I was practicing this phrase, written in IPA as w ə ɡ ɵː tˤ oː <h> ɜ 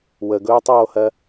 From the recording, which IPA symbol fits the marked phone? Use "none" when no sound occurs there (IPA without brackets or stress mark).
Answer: h